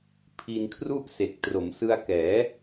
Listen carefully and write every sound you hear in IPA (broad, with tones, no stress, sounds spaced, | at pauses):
pʰ i˧ n kʰ r u˥˩ ʔ s e˨˩ k̚ t r o˩˦ m s ɯ˧ a̯ k ɛː˩˦